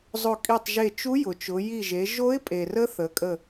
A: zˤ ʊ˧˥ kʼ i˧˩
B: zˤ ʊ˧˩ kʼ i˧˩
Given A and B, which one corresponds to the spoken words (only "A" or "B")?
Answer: B